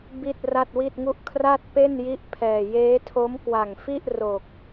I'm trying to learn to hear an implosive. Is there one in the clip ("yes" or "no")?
no